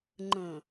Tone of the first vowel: low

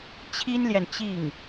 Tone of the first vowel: high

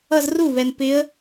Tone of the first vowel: falling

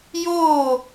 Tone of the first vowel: falling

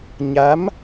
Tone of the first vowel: rising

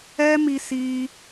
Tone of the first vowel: high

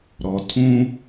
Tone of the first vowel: low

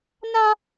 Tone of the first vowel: high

